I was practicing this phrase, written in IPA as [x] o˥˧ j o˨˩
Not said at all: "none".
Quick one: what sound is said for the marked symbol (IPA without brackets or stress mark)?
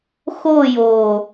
x